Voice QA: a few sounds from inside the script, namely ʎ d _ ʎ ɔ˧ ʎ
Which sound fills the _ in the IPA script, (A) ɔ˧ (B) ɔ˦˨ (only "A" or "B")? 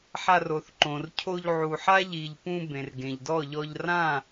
B